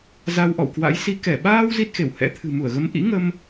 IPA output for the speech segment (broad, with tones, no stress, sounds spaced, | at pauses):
z a˧ w ʔ ɔ̰˧˨ w k w a̰˧˥ j s i˧ k ɛ˧˩ ɓ aː˧ w z i˦˥ t̚ x e˧˩ w h ɛ̰˧˥ t̪ʰ ɨ̤˨˩ m u˧˩ ə̯ ɣ ə˨˦ m ʔ ḭ˧˥ ŋ ə˧ m